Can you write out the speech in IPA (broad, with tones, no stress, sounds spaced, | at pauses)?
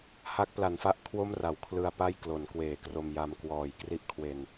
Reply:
h a˦˥ k̚ p l a˩˦ n f a˦˥ ʔ kʰ w o˥˩ m r a˩˦ w kʰ l ɯ˧ a̯ p a˥˩ j k l o˩˦ n k w eː˨˩ k r o˧ m j a˧ m k w ɔː˨˩ j k r i˥˩ ʔ kʰ w e˧ n